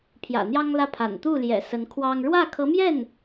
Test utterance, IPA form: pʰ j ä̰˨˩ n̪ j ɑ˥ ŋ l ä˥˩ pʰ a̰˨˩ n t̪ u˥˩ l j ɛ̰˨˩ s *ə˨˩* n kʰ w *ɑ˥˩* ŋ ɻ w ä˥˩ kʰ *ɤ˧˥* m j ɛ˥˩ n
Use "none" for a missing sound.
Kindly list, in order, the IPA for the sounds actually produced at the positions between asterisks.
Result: ə˧˥, ɑ˥, ɤ˧˥

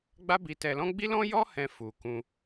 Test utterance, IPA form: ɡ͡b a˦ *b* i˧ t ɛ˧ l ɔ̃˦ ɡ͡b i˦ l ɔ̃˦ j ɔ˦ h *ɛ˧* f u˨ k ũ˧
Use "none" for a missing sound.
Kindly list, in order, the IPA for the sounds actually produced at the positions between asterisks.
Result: b, ɛ̃˧

